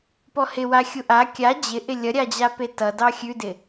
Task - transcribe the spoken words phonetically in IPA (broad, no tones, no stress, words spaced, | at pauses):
pɔhɪwa xʲuʔa kʲa d͡ʑɪʔɪ lʲʌɾʲad͡ʑape tʌdɑ xʲʉdɪ